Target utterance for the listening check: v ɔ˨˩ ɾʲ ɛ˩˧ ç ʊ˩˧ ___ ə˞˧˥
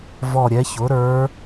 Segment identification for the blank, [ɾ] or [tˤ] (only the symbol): ɾ